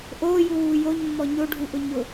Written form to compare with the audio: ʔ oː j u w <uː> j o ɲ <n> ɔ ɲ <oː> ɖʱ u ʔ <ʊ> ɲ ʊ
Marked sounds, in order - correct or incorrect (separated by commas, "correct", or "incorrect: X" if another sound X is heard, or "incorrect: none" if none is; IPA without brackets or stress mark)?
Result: correct, incorrect: mː, incorrect: o, correct